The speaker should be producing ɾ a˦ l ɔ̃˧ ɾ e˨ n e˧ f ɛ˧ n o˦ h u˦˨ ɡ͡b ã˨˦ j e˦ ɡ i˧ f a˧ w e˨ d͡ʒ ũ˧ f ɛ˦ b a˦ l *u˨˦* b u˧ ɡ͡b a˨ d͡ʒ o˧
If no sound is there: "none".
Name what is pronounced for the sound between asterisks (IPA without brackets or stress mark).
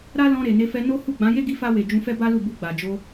u˦˨